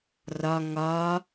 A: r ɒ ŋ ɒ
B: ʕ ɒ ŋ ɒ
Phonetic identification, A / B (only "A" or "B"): A